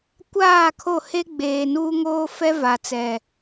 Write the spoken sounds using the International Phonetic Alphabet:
kʷ aː˦˨ kʰ o˦˨ h e˦ ɡ͡b eː˨ n uː˦ ŋ oː˦ f ɛ˦ v a˨ t͡s ɛ˨

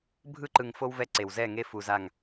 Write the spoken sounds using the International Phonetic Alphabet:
bʱ ɯ˦ ǃ ɯ˨ ŋ f o˦ w v ɛ˦ ǀ e˨ w z ɛ˦˨ ŋ e˦ f u˨ z a˦˨ ŋ

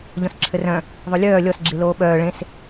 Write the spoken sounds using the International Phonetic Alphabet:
ʎ ɔ̃ s ǁʰ ɘ r œ̃ | ðˤ o lʲ œː lʲ ɔ s ɡ͡ǁ i l oː ɓ œː ɭ ẽ s

